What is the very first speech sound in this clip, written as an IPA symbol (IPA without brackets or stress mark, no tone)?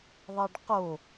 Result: ðˤ